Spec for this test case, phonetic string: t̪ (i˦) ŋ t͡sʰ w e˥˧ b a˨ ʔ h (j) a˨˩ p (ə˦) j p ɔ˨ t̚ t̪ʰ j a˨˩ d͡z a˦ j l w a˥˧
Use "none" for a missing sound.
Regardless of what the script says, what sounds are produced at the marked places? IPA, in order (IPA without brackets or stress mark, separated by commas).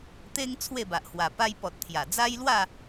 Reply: e˦, w, a˦